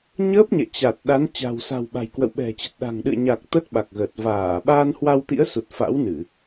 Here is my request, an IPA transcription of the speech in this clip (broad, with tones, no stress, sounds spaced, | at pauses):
ɲ əː˦˥ p̚ ɲ ɛ̰˧˨ t͡ɕ a˨˩ t̚ ɗ a˨˦ n t͡ɕ a̤˨˩ w s a̤˨˩ w ɓ a̤˨˩ j k w ə̰˧˨ w ɓ ɛ̤˨˩ t͡ɕ ə˨˩ t̚ ɗ a̤˨˩ ŋ ɗ ɨ̰˧˨ ə̯ ɲ a˨˩ k̚ t̪ ə˦˥ t̚ ɓ a˨˩ k̚ ɣ əː˨˩ t̚ v aː˧˩ ɓ aː˧ n h w a˧ w t̪ ḭ˧˥ ə̯ s u˨˩ t̚ f a̰˧˥ w n ɨ˧˩˨